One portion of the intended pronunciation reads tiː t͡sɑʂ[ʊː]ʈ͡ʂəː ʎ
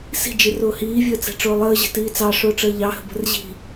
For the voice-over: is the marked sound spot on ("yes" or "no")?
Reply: yes